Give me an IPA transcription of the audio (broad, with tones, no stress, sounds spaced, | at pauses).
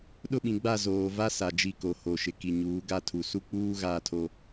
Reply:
ɗ ʊ˦˨ ɓ ĩ˨ ɡ͡b a˦˨ z oː˨ v a˦ s a˨ d͡ʒ i˦˨ k o˨ h o˨ ʃ ɪ˨ k i˨ ɲ uː˨˦ ɡ a˦ tʰ u˨ s u˦ k͡p uː˦ ɣ aː˦ tʰ o˦